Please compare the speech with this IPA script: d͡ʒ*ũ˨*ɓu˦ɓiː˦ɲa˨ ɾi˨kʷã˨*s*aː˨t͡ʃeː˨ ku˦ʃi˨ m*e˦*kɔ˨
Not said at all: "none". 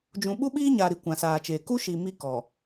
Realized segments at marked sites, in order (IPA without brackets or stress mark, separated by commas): ũ˨, s, i˦